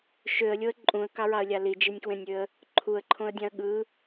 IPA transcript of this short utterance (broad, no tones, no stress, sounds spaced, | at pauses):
ʃ ø ə̯ lʲ o ə̯ ǃʼ ũ ə̯ k ɑ ɹ ɑ ə̯ lʲ ɑ l i d͡ʒ i nʲ k w ẽ nʲ ø ə̯ | ǃʰ u ə̯ ǃʰ õ ə̯ dʲ ɑ̃ ə̯ ɠ ɯ